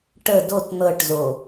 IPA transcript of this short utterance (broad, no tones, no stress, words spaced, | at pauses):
ʈə dot n̪ɤʈzo